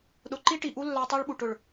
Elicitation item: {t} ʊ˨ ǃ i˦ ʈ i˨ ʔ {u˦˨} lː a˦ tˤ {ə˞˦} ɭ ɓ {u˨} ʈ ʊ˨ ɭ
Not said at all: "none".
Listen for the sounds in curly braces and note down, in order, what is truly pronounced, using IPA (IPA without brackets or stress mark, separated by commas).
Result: ɗ, u˦, ə˞˦, u˨